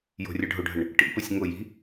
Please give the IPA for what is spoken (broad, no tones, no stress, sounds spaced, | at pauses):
j o̤ rʲ ə ɖʱ ʊ ɖʱ ə ɳ | ʈ ḭ p ʊ sʲ ŋ ʊ j i̤